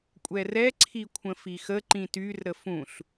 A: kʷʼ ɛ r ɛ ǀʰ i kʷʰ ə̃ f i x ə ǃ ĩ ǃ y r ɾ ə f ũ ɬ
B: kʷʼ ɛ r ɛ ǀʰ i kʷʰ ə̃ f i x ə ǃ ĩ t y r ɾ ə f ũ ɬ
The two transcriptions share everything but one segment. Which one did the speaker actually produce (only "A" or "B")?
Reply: B